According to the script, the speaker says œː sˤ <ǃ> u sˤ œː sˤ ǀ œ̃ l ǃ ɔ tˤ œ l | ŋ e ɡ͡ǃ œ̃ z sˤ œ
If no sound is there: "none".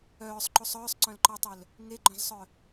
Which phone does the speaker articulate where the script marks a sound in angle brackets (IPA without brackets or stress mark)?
ǃ